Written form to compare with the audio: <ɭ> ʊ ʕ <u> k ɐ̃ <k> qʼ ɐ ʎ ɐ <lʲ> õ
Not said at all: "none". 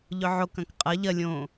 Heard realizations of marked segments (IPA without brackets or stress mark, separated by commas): ʎ, o, k, lʲ